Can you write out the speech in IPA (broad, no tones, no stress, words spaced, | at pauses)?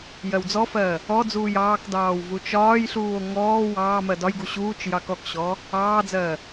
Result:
jɜwd͡zɔfɜː | ɔd͡zuːj ɑːkdɑːw vut͡ʃɒːjɬuːo̯ ŋɔː wɑː mɜdɒjɡu ɕuːt͡ʃ jɑkɔkɕɔː | ɑːd͡zɜː